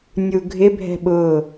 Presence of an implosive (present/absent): present